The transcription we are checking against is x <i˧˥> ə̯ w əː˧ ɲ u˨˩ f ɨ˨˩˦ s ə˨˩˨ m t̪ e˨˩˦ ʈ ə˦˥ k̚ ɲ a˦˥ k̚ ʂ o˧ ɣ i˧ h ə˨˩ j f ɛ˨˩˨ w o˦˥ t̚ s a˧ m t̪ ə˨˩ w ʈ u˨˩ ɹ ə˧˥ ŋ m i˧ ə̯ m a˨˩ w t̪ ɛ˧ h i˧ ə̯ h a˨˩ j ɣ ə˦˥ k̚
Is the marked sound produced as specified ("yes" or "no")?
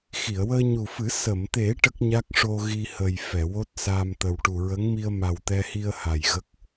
no